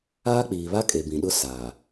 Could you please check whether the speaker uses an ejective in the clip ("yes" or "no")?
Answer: yes